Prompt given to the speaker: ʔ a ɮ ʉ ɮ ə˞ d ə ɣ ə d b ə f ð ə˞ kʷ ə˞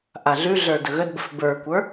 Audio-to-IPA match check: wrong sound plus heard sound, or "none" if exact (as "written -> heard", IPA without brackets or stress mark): ð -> b